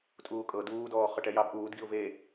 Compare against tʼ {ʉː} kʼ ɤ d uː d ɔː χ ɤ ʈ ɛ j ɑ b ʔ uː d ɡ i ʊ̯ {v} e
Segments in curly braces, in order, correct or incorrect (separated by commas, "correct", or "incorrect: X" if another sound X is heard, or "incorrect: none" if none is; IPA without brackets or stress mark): incorrect: uː, correct